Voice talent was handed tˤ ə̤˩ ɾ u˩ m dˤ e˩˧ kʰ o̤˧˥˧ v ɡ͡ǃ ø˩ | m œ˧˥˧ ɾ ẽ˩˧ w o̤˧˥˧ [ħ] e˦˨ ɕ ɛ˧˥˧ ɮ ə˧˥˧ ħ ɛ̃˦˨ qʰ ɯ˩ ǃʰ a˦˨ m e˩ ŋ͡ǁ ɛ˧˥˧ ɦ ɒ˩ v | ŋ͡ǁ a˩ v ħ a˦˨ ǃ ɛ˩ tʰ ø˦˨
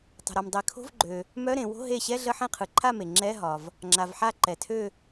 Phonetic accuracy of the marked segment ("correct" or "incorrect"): incorrect